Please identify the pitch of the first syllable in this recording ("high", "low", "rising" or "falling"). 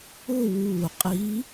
falling